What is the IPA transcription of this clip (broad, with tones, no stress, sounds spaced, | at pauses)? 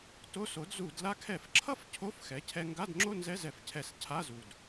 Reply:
t o˧˥˧ s o˩˥ d z u˧˩˧ d l a˧ kʰ ɛ˧˩˧ f ǁʰ ʌ˥˧ f cʰ o˧˥˧ f x ɛ˩˥ cʰ ɛ˧ ŋ ɡ a˧˥˧ d ŋ͡ǁ o˥˧ n z ɛ˧˥˧ z ɛ˧˩˧ f cʰ ɛ˧˩˧ s cʰ a˧˥˧ z u˨˩ d